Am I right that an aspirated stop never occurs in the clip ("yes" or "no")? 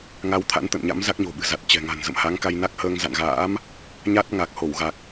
no